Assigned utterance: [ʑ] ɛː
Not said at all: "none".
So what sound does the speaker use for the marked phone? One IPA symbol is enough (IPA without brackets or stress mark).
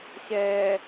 ɕ